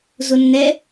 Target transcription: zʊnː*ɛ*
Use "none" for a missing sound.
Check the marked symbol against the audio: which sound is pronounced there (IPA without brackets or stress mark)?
ɛ